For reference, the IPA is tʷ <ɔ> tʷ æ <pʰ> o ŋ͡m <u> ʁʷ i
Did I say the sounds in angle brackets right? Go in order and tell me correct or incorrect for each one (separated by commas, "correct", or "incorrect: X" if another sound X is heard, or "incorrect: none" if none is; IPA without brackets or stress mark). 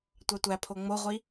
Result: incorrect: ɑ, correct, incorrect: o